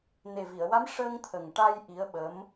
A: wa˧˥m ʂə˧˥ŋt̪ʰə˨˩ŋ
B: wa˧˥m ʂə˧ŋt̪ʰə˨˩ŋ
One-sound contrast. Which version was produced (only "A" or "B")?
B